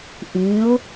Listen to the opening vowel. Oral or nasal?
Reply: nasal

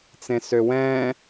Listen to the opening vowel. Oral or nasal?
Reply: nasal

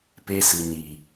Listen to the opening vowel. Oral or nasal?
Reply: oral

